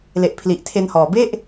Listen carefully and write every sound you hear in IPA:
l e˨˩ ʔ pʰ l i˨˩ ʔ tʰ e˧ n h ɔː˨˩ b e˥˩ ʔ

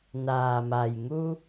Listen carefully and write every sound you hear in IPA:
n aː˩ m a˩ j ŋ u˧

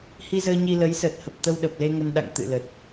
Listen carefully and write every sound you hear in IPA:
h i˧ z əː˧ ɲ i˧ l ə˨˦ j s əː˨˩ t̚ h ə˨˩ p̚ t̪ ə˧ w ɗ ə˨˩ p̚ l e˧ ŋ ə˧ n ɗ a̰˧˨ ŋ t̪ ɨ̰˧˨ l ə˨˩ t̚

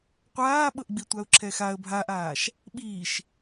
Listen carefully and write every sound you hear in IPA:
qʷ aː ɓ ɤ ʔ ɡ͡b i tʷ a ʊ̯ ǁʰ ɛ x a ə̯ bʱ a ʔ aː ʃ | ɓ iː ʃ

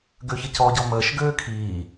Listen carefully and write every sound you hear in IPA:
ɡ ø ç ə c ɔ ɟ ɔ m əː ʃ ɡ øː kʰ iː

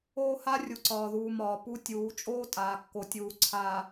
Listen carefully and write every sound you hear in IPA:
oː˦ h a˦ rʲ u˨ ǀ ɒː˨ ð uː˨ m ɒː˨ p u˦ tʲ uː˨˦ t͡ʃʼ oː˦ tʼ aː˨ kː o˨ tʲ uː˨ ǀʰ aː˨

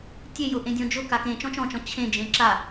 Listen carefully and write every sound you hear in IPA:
tʲ e j ʊ ʔ ẽ dʲ ɔ̃ d͡ʒ ʊ k a k ẽ t͡ʃ ɔ̃ t͡ʃ ɔ̃ t͡ʃ ɔ̃ t͡ɕʰ ẽ d͡ʒ ẽ ǁ a

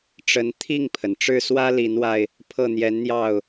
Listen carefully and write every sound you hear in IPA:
ʈ͡ʂ ə˧˥ n t̪ʰ i˥˩ ŋ pʰ ə˩ n ʈ͡ʂ ɻ̩˥˩ s w ä˥ l i˧˥ n w a˧ ɪ̯ | pʰ ɤ˥˩ n̪ j ɛ˧˥ n n̪ j ɑ˥˩ ʊ̯

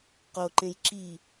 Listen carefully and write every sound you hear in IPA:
q o ǃ ẽ j ǁ i

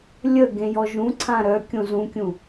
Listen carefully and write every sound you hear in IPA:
lʲ ə ɡ ẽ j ɔ ʒ ũ ǀʰ ã ɾ œ kʲ õ z ũ kʲ ũ

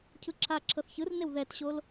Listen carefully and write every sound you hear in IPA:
cʰ ɯ ǁʰ a ǁʰ ɤ θ ç ɯ r n e w ð ɛ t ɕ o l

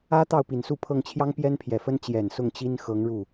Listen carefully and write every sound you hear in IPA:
ä˥ t̪ ɑ˥˩ ʊ̯ p i˨˩ n s u˥˧ pʰ ɤ˥˩ ŋ t͡ɕʰ j ɑ˥ ŋ p j ɛ˥ n pʰ j ɛ˨˩ f ə˥ n t͡ɕ j ɛ˨˩ n s ʊ˥˩ ŋ t͡ɕ i˥ n x ɤ˧˥ ŋ ɻ u˥˩

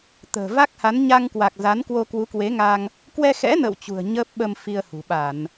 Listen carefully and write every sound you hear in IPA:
t̪ ə̤ː˨˩ v a˦˥ k̚ h a˨˦ n ɲ a˧ ŋ k w a˨˩ k̚ z a˨˦ n k w o˧ k w u˨˦ k w e˨˦ ŋ a˧ ŋ | k w ɛ˧ x ɛ̰˧˥ n ə̰ː˧˨ w t͡ɕ ṳ˨˩ ə̯ ɲ əː˦˥ p̚ ɓ ə˧ m f i˧ ə̯ h ṳ˨˩ ɓ a˧˩˨ n

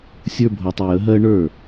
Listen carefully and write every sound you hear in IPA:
sʲ ə˞˦ bʱ o˧ tˤ ɪ˧ j ə˨˦ ɦ ɜ˦ ɳ ə˞˦˨

